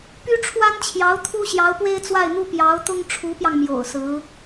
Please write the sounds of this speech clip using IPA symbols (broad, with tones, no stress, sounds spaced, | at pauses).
p y˥ ʈ͡ʂʰ w a˥ n t͡ɕʰ j ɑ˧˥ ʊ̯ t̪ʰ u˥ ɕ j ɑ˧˥ ʊ̯ p w e˥ ɪ̯ t͡s w a˥˩ ɪ̯ n̪ u˥ p j ɑ˧˥ ʊ̯ t̪ ʊ˥ ŋ ʈ͡ʂʰ u˧˥ p j ɑ˧ ŋ m j o̰˨˩ ʊ̯ s ɹ̩˧˥